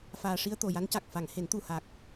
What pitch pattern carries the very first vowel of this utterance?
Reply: low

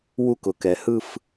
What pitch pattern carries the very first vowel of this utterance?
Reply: falling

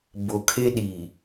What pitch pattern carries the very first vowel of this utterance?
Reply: low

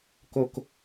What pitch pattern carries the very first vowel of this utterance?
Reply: low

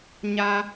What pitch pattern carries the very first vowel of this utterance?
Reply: high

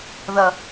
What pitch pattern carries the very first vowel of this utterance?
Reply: low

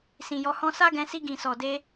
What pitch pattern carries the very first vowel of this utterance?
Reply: low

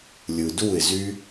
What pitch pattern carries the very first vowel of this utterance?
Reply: low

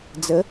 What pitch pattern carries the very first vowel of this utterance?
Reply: rising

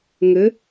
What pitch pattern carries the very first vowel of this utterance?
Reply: rising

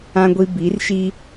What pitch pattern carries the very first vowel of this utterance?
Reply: high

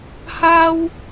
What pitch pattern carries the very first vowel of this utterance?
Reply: high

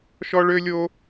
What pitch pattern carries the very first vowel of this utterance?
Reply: high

